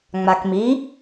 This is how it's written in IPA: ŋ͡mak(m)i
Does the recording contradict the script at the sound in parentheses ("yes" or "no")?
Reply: no